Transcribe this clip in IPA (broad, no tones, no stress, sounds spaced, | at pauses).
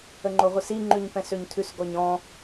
ə ŋ͡ǃ o ʁʷ i s i ŋ͡ǃ ʉ ɲ p ɛ̃ s ø ɲ tʰ ʉ s ɡ ɔ ɲ ɔ̃